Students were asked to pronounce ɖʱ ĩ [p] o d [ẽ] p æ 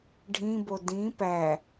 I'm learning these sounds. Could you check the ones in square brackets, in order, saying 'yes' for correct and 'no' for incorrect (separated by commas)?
no, no